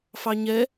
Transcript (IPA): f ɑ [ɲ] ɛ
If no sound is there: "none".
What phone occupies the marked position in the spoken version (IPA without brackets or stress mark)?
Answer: ɲ